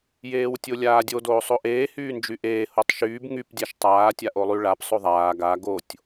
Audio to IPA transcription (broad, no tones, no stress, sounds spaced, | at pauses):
j eː w tʲ o lʲ aː dʲ o d oː sˤ o ʔ eː h yː n d͡ʒ y ʔ eː h o tˤ ʃ yː b ŋ y p dʲ a ʃ tˤ aː tʲ a ʔ o lˠ y ɭ a p sˤ o ðˤ aː ɡ a ɡ o tʲ